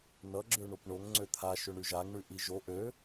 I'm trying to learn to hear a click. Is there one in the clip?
yes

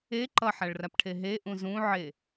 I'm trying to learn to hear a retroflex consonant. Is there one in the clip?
yes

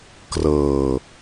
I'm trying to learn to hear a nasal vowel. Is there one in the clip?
no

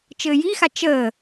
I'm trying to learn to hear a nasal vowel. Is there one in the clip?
no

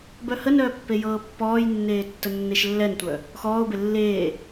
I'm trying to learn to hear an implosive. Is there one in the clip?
no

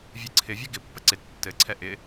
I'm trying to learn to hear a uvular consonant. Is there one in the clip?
no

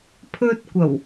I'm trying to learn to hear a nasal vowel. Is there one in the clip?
no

